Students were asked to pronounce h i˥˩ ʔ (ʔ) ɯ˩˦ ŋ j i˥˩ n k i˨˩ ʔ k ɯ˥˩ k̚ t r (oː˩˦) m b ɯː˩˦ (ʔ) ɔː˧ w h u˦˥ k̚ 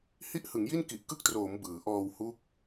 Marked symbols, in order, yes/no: no, yes, yes

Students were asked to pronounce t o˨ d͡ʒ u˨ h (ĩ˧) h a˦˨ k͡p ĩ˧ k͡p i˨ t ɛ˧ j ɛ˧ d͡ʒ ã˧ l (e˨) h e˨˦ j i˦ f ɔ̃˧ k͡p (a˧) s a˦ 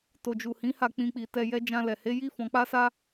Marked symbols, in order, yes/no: no, no, no

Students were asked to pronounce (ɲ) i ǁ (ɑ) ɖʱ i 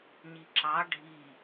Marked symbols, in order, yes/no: yes, yes

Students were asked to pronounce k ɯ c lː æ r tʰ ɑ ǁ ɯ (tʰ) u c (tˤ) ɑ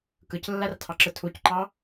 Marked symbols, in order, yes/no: yes, no

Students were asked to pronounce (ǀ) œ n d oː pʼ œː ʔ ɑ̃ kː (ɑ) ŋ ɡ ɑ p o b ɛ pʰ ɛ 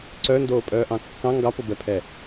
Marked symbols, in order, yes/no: yes, no

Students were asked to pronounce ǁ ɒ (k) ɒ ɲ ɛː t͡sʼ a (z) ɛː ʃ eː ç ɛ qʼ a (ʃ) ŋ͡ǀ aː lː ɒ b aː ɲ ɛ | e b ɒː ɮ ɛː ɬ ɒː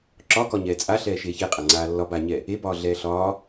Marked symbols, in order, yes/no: yes, no, no

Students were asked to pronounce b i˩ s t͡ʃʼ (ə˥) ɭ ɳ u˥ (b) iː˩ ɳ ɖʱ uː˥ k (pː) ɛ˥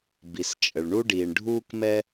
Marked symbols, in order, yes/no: no, no, no

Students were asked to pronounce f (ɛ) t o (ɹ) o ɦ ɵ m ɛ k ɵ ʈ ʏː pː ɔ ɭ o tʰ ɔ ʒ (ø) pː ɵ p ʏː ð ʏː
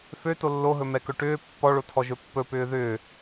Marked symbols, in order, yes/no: no, no, no

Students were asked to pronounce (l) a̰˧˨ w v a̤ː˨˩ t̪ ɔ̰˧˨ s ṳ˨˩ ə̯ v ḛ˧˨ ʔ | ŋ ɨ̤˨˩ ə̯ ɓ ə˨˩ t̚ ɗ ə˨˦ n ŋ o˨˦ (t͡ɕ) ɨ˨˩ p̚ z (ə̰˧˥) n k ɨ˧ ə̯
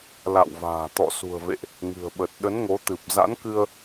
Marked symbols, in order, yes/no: yes, no, no

